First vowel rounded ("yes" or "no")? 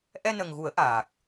no